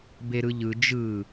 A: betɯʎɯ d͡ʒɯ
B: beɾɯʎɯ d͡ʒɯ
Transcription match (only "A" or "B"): B